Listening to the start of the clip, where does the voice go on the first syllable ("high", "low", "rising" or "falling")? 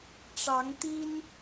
rising